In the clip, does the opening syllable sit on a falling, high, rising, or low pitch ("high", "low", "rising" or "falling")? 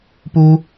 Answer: high